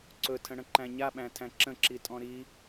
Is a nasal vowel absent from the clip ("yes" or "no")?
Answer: no